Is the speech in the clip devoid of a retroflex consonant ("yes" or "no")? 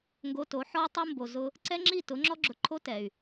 yes